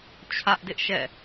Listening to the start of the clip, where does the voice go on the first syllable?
high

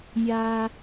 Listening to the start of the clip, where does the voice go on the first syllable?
high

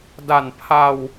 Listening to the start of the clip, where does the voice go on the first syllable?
low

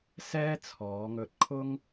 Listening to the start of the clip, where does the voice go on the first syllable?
high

